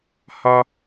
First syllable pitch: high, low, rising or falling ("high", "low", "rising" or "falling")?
high